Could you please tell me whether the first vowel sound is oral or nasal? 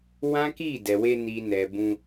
nasal